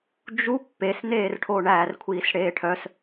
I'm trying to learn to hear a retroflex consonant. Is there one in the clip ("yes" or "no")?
yes